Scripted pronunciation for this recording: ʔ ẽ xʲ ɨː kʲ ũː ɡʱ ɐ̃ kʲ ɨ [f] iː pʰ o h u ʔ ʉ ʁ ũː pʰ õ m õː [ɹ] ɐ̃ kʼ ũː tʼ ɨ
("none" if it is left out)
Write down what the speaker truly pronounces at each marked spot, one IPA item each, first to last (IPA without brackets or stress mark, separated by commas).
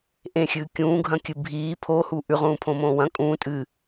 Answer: bʱ, w